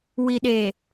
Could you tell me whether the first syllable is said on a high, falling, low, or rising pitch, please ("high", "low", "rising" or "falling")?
low